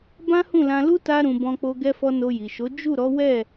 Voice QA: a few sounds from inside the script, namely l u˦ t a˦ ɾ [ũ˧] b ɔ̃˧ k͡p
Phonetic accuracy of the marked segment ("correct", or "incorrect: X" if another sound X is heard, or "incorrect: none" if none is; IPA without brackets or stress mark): correct